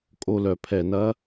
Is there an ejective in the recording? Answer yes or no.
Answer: yes